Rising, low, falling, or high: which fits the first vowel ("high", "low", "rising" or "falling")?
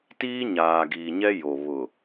high